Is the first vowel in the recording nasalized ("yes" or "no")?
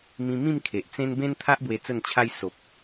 yes